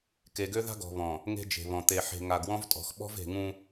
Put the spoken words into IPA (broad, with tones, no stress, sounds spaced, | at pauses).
k e˨ ɡ ø˦ ð a̤˦ ɡ ɔ̤˨ β ɔ̃˨ | ŋ e̤˦ d͡ʒ e̤˨ β ɔ̃˨ t̪ e˨ ħ e̤˨ ŋ a˨ ɡ w ɔ̃˦ v tʼ ɔ̤˨ x ɓ ɔ̤˦ v e̤˨ ŋ ũ˦